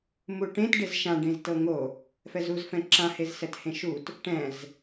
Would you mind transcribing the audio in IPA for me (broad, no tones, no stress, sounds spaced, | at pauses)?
m u ʈ ẽ t ɖ e z ʃ ã ɖ ẽ z t ɤ ŋ o | f ɛ z u z f ɛ̃ ǁ ã h e z s ɛ t h ẽ ʃ u t | ʈ ɛ̃ z